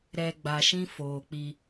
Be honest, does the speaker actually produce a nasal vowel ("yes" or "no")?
yes